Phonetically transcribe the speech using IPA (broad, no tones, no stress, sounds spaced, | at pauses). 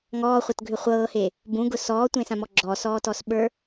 ŋ ɔː χʷ ɤ t ɡʱ ʏ χʷ ɤː h e | b ũ ɡ ʊ s ɔː tʷ ẽ s ã m ɔ ɡ͡ǁ ɔː s ɔː t ɔ s ɓ ə˞